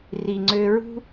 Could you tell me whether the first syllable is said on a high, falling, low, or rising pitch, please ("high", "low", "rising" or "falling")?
low